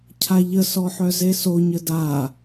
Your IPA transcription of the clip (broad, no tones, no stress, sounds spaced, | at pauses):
cʰ a ʎ ə s ɔ ħ œ z e s o ɲ ə d a